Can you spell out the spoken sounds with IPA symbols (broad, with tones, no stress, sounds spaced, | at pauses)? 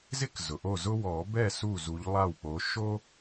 z ɪ˥ k z ʊ˩ ʔ o˥˩ z ʊ˥ w ɔ˨˩˦ b ɛ˥˩ s u˥˩ z u˨˦ ʎ lˠ a˥˩ w k͡p o˨˦ ʃ o˥